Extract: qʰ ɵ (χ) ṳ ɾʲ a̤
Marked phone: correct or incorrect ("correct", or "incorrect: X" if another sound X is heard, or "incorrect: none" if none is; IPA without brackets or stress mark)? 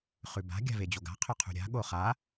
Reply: incorrect: qʰ